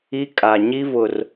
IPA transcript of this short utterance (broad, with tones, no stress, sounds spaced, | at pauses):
i˦ kʼ a˨ ɲ i˦ v ʊ˨ r